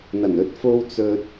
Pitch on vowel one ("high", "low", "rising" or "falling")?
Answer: low